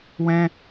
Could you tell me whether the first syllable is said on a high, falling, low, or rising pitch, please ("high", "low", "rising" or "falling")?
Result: high